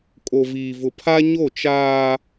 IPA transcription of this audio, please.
kʼ o˨ v iː˨ v ʊ˨ pʰ a˦ ɲ o˦˨ t͡ʃ aː˦

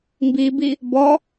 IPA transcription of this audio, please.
m b i b i | b ɔ

